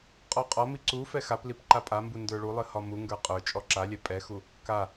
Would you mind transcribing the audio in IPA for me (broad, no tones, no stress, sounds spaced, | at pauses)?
qʼ ɔ qʼ ɒ m i ǀ u f ɛ x a p l i p ǃ a pʼ a m b u n d ə˞ ɭ u lˠ ɨ h ɒ m u ŋ ɡ ə˞ qʼ ə˞ t͡ʃʼ ɔ ǁ a lʲ ɛ pʼ ɛ x u | k a